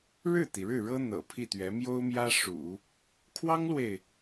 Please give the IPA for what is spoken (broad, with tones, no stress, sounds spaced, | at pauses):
ɻ ɻ̩˥˩ t̪ i˩ ɻ ɻ̩˥˩ ɻ ɤ˥ n̪ ɤ̰˨˩ pʰ i˥˩ t̪ ɥ ɛ˧˥ m j o˥ ʊ̯ m j ä˥ ʂ ṵ˨˩˦ | kʰ w ɑ˥ ŋ l w e˨ ɪ̯